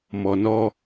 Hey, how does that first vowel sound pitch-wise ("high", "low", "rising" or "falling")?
low